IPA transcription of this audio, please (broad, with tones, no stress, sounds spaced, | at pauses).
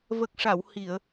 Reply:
v ə˨˩ k̚ ʂ a˨˩˨ w h i˨˩˨ ə̯